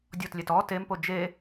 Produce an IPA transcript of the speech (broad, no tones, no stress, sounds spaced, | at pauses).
dʲ ɔ t lʲ ɛ t ɔ t e m p o d͡ʒ e